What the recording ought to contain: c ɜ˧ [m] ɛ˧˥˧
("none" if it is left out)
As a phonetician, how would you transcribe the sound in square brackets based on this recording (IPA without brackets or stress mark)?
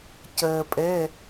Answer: pʼ